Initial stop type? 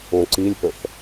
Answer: click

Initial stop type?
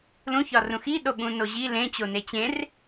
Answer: implosive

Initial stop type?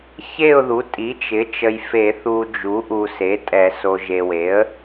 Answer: ejective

